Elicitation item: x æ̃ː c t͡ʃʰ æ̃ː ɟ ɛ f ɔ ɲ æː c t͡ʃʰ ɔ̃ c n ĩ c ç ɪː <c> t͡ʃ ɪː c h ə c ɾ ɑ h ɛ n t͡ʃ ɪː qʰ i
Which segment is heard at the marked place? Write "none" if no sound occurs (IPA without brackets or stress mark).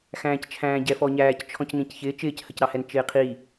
none